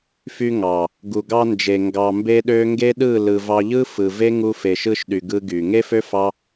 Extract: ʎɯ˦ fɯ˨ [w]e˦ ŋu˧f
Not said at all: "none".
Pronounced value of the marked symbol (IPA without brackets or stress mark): v